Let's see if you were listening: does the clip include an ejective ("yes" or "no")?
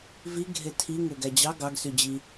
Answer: no